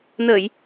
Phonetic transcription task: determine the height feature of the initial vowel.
mid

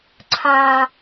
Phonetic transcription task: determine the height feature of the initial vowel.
low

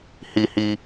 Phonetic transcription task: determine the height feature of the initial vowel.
high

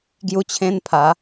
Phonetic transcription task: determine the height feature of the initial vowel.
high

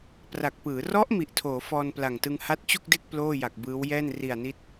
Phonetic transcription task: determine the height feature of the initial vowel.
low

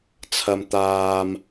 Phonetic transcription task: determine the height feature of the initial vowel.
low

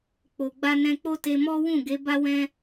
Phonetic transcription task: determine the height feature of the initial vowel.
mid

